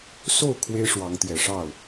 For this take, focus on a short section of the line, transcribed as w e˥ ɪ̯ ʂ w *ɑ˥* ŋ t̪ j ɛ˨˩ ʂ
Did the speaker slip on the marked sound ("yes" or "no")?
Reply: yes